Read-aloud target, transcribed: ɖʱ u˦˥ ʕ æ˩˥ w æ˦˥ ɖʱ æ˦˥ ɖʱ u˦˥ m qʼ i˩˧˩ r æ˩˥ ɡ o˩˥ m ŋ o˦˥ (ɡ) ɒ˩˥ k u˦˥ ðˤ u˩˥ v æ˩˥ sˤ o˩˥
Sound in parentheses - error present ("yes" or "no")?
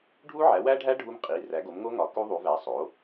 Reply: yes